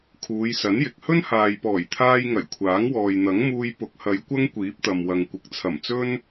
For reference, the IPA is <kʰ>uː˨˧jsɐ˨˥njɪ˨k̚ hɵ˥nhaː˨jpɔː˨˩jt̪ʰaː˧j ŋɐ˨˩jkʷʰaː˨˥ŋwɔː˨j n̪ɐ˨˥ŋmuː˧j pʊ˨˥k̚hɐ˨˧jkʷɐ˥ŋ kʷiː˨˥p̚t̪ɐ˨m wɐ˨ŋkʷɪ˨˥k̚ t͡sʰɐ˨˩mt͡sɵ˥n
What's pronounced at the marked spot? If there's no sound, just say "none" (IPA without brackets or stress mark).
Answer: kʰ